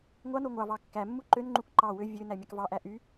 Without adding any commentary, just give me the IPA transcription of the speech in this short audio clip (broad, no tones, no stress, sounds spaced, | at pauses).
ŋʷ ɑ n o ŋʷ ɑ v ɑ kː æ mː u ǃ ø n ŋ͡ǃ u k ǃ ɑ w ø vʲ ø n æ mʲ ɑ k v ɑ ʔ æ ʔ y